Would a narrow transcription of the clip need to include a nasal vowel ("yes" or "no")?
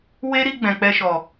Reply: yes